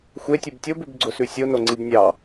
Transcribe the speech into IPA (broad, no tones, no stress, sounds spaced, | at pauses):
xʷ e tʲ u b tʲ o b ʉ b ɡ͡ǀ ʊ s ʉ sʲ o n o ŋ͡ǀ i b nʲ ɑ